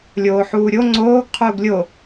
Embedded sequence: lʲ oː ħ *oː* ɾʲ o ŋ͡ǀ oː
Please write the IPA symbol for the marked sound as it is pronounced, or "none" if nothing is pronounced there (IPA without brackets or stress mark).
uː